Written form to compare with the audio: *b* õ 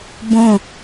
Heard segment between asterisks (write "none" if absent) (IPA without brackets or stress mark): b